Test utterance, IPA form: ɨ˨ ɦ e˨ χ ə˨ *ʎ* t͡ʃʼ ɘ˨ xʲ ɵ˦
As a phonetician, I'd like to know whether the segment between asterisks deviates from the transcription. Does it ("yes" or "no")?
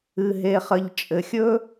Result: no